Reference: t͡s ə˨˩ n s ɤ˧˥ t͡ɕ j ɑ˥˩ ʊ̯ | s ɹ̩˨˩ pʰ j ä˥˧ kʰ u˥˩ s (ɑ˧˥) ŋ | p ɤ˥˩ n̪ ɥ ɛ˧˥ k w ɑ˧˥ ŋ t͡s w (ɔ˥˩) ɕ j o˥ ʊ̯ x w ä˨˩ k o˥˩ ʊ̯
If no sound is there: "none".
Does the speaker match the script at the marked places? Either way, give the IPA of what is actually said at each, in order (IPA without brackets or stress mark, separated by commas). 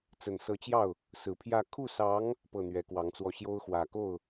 ɑ˧˥, ɔ˥˩